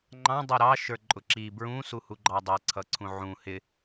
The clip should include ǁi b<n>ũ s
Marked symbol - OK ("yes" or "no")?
no